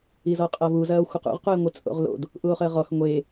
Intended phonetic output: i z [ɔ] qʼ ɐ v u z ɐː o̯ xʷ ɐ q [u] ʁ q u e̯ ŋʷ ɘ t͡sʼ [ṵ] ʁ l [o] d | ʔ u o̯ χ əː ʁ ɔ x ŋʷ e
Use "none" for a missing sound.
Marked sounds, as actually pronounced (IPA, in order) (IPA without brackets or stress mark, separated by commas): ɔ, ṵ, o̰, o̰